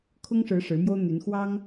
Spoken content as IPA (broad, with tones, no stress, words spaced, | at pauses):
kʰʊ˥ŋʂɻ̩˧˥ ʂɻ̩˧˥mjo˥ʊ̯ n̪y˧˥n xwɑ˥ŋ